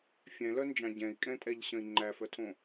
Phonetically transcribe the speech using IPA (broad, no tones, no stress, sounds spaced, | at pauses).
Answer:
fʲ ɛ̃ l œ n d͡ʒ ɑ̃ ɟ ɛ̃ i̯ kʼ ɛ̃ tʼ ɛ ʎ ɕ œ̃ i̯ ŋ͡ǃ æ f œ tʰ õ